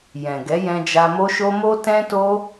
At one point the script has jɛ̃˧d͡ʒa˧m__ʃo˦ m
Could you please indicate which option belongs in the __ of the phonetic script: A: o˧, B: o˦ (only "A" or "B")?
B